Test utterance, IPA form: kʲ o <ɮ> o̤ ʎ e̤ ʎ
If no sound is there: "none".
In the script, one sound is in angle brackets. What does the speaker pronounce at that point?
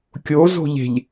z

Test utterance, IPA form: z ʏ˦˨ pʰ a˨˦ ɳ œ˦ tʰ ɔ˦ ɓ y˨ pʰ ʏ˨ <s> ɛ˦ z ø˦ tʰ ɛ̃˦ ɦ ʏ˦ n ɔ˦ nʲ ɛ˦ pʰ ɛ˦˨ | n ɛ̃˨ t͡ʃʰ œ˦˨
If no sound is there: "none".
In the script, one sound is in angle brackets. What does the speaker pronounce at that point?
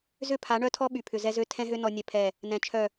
z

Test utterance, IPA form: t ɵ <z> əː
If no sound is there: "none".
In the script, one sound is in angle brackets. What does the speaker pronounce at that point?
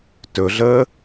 ɮ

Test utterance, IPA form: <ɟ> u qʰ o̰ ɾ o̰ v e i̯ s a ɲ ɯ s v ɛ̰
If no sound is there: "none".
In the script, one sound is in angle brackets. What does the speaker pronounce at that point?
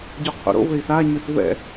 ɟ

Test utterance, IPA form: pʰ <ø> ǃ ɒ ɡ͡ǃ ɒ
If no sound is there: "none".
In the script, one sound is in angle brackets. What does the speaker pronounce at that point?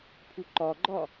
u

